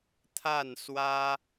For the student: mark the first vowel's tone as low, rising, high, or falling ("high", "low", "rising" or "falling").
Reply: falling